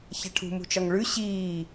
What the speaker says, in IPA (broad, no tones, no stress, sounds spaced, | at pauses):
ç a ʈʰ ṳ m ṳ t͡ʃ ɒ ŋ ɭ ʉ ɕ iː